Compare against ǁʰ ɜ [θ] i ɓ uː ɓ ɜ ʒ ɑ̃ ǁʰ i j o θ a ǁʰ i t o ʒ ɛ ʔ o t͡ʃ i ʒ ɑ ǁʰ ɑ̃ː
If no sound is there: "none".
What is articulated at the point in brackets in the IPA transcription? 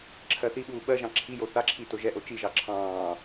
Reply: θ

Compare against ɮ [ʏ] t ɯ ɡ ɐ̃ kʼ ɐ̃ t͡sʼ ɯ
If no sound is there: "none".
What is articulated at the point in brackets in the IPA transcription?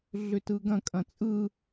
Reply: ʏ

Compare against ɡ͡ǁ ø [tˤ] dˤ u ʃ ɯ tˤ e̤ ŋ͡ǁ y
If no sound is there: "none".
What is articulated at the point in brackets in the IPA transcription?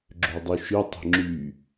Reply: none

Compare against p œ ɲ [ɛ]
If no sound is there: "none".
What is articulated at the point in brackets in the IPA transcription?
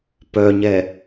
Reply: ɛ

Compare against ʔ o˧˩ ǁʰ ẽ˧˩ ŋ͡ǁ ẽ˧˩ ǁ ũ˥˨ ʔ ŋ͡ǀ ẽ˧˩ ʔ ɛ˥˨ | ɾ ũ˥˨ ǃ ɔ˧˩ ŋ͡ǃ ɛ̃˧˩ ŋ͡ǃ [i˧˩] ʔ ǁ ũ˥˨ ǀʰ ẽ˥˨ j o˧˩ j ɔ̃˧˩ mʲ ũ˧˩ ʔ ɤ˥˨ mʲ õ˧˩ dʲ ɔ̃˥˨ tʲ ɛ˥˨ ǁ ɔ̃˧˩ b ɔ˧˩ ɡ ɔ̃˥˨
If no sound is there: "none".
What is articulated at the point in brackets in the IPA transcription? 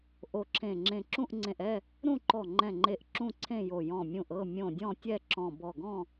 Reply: e˧˩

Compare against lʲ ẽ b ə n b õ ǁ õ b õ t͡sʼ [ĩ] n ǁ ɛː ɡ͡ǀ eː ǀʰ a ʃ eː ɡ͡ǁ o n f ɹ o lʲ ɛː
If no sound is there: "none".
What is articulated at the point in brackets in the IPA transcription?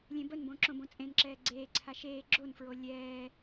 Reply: ẽ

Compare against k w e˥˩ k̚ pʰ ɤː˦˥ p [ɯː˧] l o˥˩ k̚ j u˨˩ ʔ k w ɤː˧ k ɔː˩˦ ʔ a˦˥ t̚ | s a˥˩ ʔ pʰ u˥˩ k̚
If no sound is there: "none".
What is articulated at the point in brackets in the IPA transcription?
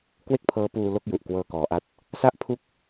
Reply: uː˧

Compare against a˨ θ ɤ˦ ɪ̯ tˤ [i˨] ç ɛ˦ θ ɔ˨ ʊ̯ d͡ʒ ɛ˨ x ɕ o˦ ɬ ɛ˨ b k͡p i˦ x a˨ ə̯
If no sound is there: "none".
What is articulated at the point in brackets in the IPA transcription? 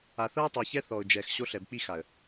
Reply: e˨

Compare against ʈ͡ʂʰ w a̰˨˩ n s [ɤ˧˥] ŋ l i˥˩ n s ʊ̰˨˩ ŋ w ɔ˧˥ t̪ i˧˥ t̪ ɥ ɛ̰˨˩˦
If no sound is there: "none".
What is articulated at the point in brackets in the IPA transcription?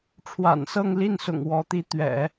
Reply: ɤ˥˧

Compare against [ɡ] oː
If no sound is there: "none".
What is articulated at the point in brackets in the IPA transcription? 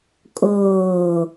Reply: kʼ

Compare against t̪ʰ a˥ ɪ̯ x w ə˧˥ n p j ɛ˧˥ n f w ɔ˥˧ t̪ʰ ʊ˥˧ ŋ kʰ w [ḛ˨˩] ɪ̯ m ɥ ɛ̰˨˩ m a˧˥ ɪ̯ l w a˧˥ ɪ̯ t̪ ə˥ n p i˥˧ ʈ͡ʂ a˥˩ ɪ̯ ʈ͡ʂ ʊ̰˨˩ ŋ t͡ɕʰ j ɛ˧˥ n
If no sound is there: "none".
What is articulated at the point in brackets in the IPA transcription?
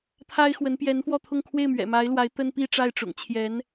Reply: e˥˩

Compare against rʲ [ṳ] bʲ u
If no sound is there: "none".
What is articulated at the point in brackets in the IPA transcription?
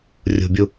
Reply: ṳ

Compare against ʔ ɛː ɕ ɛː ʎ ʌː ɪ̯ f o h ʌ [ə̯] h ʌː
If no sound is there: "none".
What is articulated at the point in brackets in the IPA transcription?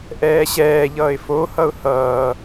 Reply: ʊ̯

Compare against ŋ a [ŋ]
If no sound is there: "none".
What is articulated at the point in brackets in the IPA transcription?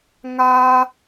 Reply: none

